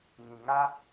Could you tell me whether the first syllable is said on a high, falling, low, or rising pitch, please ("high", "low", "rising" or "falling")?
low